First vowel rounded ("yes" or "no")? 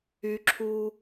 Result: yes